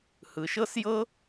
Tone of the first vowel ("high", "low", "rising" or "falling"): low